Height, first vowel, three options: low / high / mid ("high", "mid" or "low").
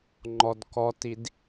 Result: mid